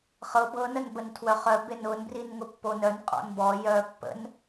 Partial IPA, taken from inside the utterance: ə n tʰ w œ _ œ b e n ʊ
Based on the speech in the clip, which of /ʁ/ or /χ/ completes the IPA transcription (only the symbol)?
χ